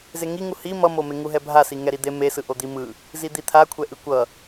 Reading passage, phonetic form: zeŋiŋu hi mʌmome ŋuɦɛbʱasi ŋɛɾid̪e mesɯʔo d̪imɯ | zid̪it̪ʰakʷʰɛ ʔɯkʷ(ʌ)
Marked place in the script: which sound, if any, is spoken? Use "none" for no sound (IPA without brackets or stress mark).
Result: ʌ